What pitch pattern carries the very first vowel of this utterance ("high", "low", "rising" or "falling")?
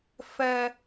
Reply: low